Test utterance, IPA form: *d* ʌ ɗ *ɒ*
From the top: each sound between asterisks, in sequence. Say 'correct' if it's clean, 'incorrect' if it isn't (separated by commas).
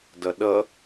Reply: correct, incorrect